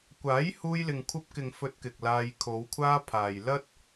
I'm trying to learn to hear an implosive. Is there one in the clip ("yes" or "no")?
no